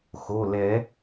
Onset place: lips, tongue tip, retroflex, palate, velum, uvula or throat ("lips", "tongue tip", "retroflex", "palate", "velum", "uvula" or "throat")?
velum